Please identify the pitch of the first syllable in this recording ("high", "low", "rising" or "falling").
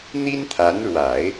high